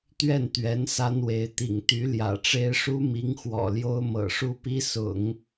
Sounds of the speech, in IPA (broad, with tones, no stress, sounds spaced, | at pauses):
t̪ ɥ ɛ˥˩ n t̪ ɥ ɛ˧˥ n s a˥ n w e˧˥ ɪ̯ t̪ ḭ˨˩ ŋ t̪ y˧˥ l j ä̰˨˩ ʈ͡ʂ e˥ ɪ̯ ʂ u˥ m i˧˥ ŋ x w ɔ̰˨˩ l j o˥ ʊ̯ m ɤ̰˨˩ ʂ u˥˩ p i˥ s ʊ̰˨˩˦ ŋ